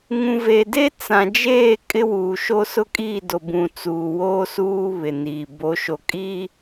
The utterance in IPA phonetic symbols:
ŋ ũ˨ v e˨ d e˦ t͡s ã˨ d͡ʒ eː˦˨ kʼ ɪ˦ w uː˨ ʃ o˦ s ʊ˦ kʼ iː˦˨ d o˨ b ũ˨ t͡s uː˨ w oː˦ s uː˦ β ɪ˨ n iː˨ b o˨˦ ʃ o˨ kʼ i˦

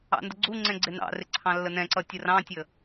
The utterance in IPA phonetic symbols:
ɑ̰ n d ə ɡ͡ǀ u ŋ͡ǀ ɛ̃ ɡ͡ǀ ɪ n ɑ̰ r ɪ ǀʰ ɑ̃ lː ə n ɛ̃ ǀ ʌ tʲ ə r ɑ̃ tʲ ə

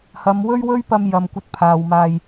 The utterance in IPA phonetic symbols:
h ɐ˨˧ m w ɵ˥ ɥ w ɵ˥ ɥ p ɐ˧ m j ɐ˨ m kʷ ɐ˧ t̚ pʰ aː˨ w m aː˧ j

